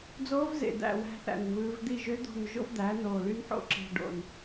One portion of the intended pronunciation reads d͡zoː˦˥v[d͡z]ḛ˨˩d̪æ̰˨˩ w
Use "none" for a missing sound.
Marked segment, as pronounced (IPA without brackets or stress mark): z